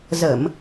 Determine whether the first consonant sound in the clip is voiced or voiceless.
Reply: voiced